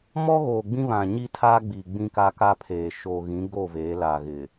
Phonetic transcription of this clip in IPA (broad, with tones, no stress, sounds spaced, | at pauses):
m ɔ˦ ɣ oː˨ ɡ͡b ĩ˦ β ã˨ ɲ i˦ tʰ a˦ ɡ͡b i˨ ɡ͡b ĩ˦ k a˦ k a˦ pʰ eː˨ ʃ oː˨ ɣ ĩ˨˦ ɡ o˦˨ v eː˨˦ l a˨ ɣ ɪ˨